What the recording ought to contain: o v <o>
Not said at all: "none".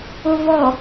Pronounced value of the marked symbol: ɔ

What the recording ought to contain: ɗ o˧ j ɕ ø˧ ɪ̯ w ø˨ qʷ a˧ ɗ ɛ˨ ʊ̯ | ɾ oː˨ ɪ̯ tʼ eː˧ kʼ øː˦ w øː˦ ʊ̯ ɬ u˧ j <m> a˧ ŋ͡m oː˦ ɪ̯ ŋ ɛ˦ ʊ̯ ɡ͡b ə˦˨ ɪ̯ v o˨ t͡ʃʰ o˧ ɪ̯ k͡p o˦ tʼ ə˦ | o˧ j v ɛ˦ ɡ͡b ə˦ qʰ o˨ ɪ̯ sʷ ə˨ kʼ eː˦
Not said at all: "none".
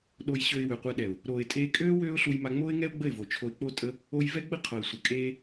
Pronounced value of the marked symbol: m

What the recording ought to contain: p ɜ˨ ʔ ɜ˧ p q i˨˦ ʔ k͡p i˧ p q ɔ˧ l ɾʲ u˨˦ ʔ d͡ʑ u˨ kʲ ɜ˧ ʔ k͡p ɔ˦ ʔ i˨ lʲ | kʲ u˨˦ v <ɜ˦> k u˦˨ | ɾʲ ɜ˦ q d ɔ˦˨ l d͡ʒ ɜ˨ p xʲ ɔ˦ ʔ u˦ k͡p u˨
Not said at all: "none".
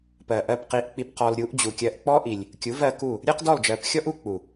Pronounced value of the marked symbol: ɜ˧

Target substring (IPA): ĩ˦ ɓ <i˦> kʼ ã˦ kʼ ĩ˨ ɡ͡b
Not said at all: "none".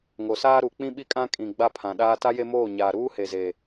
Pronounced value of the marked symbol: i˦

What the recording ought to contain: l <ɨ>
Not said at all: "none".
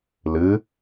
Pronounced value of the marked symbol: ɨ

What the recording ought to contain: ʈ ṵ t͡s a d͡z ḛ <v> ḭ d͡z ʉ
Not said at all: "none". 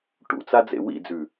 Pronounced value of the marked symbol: w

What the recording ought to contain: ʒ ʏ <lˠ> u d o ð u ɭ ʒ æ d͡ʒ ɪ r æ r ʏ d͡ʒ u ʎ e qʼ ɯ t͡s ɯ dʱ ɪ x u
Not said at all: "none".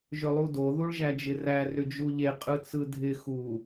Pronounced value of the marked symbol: lˠ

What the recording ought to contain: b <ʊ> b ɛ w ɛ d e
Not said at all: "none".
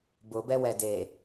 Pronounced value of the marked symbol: ʊ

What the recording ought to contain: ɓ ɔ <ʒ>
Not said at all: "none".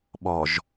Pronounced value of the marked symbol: ʒ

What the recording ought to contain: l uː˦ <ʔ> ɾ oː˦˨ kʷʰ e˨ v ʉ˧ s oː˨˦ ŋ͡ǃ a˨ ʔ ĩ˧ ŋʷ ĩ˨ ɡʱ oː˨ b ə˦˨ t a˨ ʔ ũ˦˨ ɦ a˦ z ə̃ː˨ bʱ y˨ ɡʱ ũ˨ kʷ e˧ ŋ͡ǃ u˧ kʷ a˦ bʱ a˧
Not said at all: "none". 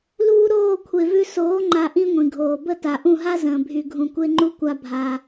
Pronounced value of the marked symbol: none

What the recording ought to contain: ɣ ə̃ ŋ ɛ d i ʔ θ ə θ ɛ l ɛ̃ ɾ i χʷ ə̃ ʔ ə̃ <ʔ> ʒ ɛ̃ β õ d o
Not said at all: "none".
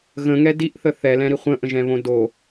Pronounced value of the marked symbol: none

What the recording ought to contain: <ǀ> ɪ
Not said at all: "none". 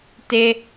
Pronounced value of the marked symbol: t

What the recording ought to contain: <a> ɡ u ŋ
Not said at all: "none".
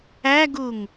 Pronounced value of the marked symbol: æ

